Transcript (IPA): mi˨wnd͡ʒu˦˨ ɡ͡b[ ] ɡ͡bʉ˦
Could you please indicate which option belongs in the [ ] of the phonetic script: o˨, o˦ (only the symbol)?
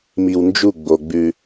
o˨